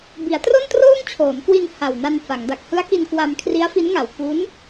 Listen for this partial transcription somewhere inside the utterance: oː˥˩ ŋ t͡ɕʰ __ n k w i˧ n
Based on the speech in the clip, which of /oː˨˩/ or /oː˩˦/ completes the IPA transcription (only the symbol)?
oː˩˦